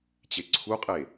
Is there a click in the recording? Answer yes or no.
yes